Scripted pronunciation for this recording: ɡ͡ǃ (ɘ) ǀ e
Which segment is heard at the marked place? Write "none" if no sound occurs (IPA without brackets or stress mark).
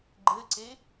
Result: ɘ